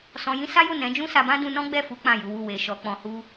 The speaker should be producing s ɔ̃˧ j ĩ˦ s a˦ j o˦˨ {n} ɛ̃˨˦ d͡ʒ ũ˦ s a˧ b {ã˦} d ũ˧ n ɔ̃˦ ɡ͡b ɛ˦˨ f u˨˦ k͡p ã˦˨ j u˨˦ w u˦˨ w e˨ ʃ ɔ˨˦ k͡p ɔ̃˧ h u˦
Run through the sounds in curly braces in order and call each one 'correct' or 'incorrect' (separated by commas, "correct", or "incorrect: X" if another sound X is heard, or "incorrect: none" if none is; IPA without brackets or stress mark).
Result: correct, correct